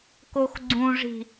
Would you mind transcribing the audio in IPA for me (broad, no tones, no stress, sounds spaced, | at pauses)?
k o x ɡ͡ǀ ũ ʐ i̤